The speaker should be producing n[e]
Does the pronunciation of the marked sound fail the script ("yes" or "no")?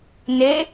no